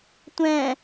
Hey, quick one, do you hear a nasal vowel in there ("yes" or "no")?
yes